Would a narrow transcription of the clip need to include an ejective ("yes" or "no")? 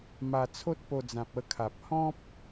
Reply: no